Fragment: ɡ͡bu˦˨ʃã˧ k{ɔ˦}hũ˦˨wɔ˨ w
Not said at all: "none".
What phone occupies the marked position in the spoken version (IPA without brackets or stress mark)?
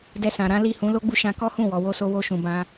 ɔ˦